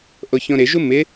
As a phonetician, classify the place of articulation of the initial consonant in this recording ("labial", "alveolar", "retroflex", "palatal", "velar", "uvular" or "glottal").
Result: glottal